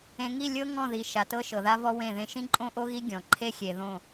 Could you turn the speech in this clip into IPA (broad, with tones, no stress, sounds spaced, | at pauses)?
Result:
ẽ˨ ŋ i˦˨ lʲ ɤ˦ ŋ ɔ̃˦˨ ð i˨ ʃ a˨ t ɤ˦ ʃ ɤ˨ ð a˦ v ɔ˦ w ẽ˦˨ ð ẽ˦ ʃ ĩ˦ ǃʼ õ˦ ʔ o˦ ɣ i˦ ɡʲ ɔ̃˨ ǃʰ e˦ xʲ e˨ ð õ˦˨